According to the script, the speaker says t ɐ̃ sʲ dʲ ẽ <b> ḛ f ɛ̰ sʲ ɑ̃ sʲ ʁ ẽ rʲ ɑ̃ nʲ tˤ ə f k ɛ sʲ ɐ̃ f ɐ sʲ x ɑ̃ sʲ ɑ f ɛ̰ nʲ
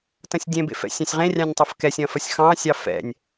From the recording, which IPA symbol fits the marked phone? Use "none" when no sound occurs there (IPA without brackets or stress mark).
b